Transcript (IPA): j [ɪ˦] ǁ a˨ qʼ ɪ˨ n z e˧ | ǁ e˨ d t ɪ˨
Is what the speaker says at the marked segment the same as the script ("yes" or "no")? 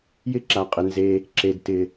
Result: yes